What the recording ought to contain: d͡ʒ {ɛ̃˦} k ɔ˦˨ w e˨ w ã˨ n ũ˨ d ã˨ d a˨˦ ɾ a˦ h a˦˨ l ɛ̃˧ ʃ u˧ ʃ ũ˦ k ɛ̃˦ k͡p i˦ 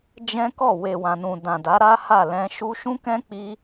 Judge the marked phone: correct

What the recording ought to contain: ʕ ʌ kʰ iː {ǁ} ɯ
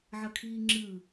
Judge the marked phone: incorrect: ŋ͡ǁ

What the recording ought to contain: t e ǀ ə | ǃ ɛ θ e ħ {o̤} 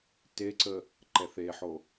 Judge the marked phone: incorrect: o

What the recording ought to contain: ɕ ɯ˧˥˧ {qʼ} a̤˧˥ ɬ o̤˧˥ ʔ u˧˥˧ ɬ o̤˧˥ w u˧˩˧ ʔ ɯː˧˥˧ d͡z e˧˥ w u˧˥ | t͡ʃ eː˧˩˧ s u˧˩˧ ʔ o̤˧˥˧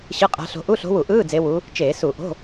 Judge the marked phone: correct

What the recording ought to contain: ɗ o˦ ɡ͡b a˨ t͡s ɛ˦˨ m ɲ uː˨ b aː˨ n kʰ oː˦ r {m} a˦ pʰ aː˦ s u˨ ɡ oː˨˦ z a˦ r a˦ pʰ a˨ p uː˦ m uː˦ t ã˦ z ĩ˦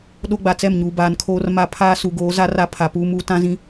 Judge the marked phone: correct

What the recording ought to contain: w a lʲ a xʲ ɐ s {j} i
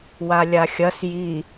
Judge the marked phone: correct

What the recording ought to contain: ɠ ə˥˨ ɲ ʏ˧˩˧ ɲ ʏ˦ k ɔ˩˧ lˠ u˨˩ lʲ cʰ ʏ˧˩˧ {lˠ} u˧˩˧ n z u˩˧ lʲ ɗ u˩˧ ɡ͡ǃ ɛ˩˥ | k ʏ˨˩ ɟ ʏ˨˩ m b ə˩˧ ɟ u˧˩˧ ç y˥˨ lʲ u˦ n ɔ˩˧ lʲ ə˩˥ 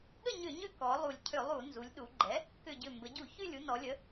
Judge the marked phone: correct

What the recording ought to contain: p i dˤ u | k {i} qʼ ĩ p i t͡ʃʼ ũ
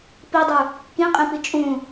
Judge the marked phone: incorrect: ĩ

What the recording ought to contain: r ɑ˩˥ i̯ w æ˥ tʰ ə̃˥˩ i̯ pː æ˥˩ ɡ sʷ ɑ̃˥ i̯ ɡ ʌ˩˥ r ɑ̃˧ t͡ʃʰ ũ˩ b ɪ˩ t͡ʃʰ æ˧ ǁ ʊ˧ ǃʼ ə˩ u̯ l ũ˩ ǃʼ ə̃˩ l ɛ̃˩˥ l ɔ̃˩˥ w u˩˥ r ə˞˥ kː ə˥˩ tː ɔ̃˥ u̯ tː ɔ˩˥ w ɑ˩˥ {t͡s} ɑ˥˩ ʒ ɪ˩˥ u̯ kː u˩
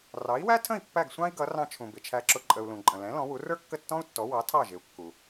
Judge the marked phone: incorrect: tʰ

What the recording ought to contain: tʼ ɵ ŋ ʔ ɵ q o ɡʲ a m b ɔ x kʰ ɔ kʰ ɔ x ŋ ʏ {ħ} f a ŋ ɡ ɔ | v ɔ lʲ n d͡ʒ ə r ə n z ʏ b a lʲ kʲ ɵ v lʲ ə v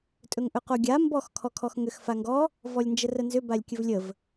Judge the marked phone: incorrect: x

